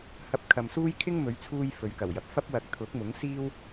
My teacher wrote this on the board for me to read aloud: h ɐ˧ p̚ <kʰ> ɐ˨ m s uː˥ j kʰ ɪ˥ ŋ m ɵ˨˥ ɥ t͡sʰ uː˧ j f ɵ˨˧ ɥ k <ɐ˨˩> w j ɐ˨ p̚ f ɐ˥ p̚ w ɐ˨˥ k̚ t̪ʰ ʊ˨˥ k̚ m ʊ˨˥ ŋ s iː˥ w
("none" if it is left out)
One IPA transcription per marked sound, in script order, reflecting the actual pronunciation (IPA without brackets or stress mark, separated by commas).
kʰ, ɐ˨˩